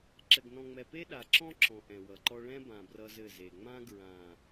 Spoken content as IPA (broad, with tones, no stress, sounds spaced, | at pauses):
ǁ ɘ˨ ɡ n ɔ̃˨ ŋ͡m ɛ˨ p e˦ ɗ a˨ ǁ ɔ̃˦ ǁ ɔ̃˨ ʔ ɛ̃˨ w ʌ˨ ǃ ɔ˦ ɭ ɛ̃˦ b ã˨ b r ʌ˦ z ɘ˦˨ z e˨ ŋ͡m ã˦ ɡ ɹ ã˨